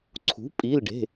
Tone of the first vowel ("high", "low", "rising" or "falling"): rising